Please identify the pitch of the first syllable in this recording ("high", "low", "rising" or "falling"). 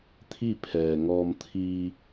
falling